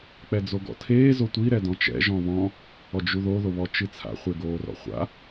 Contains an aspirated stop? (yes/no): yes